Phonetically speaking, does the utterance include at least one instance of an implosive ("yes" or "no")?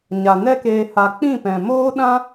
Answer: yes